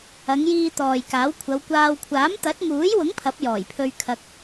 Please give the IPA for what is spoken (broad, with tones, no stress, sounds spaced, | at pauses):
ɐ˨˧ ŋ j iː˧ t̪ ɔː˨ j k aː˨˥ w kʷʰ ɐ˨˧ w kʷ aː˧ w kʷʰ aː˨˥ m t̪ ɐ˨˥ t̚ m uː˨˥ j w ʊ˨˥ ŋ pʰ ɐ˨˥ p̚ j ɔː˨˩ j pʰ ɵ˧ ɥ kʰ ɐ˧ k̚